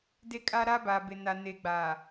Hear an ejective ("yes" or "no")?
yes